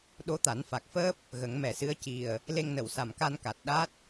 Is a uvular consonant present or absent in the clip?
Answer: absent